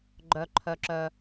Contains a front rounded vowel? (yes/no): yes